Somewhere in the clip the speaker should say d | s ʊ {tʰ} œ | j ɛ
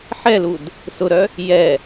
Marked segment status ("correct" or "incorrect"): incorrect